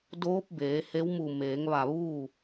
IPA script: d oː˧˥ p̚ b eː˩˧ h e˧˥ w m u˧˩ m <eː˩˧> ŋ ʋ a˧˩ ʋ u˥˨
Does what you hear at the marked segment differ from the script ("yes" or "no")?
no